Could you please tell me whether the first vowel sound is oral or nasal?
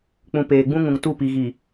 nasal